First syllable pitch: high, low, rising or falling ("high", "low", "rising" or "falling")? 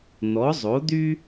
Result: rising